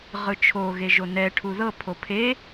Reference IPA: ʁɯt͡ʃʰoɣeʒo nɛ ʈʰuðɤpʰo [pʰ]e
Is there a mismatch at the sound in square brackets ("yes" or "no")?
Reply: no